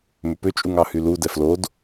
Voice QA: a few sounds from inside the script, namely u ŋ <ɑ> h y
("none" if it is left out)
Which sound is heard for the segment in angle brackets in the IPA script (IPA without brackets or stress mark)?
ɑ